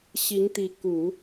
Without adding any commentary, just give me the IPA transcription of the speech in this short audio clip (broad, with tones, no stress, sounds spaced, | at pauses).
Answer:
ɕ i˧˥ ŋ t̪ i˧˥ k u˨˩˦